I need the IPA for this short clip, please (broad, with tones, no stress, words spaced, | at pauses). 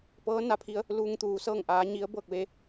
pɤː˧˥na˩˧pʰi˧ə̯ | luː˧ŋt̪uː˩˧sɤː˥˨ŋʔaː˧˥ ɲi˧˥ə̯ bɤː˥˨k̚ʋe˧